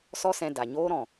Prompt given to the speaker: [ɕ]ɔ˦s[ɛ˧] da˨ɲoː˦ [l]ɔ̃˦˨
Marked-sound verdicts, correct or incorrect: incorrect: s, incorrect: ɛ̃˧, incorrect: ɾ

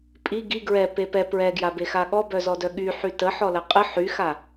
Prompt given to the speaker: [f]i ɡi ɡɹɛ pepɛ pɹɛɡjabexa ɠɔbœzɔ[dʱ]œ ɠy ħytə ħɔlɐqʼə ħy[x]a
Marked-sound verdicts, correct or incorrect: incorrect: pʼ, incorrect: d, correct

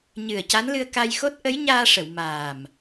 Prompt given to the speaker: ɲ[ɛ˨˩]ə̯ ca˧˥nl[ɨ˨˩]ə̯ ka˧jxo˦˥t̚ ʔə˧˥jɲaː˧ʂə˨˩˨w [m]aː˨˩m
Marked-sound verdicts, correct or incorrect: incorrect: ɨ˨˩, incorrect: ɨ˧, correct

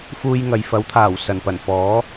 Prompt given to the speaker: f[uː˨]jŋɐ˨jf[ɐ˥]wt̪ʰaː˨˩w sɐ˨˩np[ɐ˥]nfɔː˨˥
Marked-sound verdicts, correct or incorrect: incorrect: uː˧, incorrect: ɐ˨˥, incorrect: ɐ˨˩

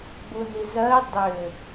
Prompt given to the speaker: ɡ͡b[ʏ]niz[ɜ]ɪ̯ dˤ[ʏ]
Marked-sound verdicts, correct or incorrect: incorrect: u, correct, correct

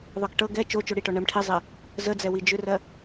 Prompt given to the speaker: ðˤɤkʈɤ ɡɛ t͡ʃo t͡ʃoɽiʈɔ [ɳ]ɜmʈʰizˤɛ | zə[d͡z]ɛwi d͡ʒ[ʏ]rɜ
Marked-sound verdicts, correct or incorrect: correct, correct, correct

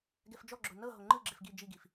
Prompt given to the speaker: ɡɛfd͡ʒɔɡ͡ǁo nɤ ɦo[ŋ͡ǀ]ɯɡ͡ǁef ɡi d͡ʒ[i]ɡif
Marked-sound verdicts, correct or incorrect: incorrect: ŋ͡ǃ, correct

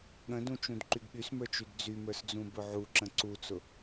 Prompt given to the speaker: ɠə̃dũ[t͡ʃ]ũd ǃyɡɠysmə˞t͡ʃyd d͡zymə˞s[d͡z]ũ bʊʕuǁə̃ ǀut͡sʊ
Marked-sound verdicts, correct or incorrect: correct, correct

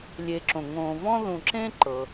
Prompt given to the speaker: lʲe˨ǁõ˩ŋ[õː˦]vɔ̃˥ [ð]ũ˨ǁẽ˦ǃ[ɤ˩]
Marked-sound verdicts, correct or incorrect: incorrect: õː˨, correct, correct

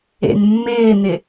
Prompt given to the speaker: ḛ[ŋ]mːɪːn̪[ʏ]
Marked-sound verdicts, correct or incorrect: incorrect: n, incorrect: ɪ

